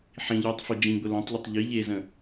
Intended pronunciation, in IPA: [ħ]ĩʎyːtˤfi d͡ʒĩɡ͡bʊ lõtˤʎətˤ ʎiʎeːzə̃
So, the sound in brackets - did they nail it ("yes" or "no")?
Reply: yes